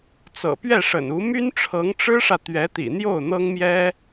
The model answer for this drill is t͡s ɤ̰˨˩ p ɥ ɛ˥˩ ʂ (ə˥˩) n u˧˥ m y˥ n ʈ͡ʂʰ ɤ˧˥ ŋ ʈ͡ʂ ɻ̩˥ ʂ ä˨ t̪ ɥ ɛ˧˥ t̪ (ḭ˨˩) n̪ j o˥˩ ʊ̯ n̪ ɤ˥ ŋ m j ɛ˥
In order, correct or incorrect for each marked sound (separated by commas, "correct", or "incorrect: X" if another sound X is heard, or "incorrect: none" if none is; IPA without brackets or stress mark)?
incorrect: ə̰˨˩, correct